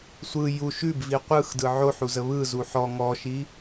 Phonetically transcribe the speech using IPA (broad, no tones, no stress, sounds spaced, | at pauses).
sʷ ɯ j u ʃ ʉ b v i qʷ ɯ x d ɯ ʕ o ħ u z ə β ɯ z u ħ ɔ ŋ ɔ ʃ i